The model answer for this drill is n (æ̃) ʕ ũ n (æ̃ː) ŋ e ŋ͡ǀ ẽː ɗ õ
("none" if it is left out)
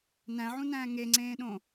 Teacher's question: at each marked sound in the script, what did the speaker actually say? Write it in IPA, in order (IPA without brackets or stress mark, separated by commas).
æ̃, æ̃ː